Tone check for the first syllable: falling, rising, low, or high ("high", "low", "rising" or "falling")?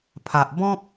low